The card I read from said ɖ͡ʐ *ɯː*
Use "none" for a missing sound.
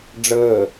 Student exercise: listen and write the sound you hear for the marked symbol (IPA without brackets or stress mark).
əː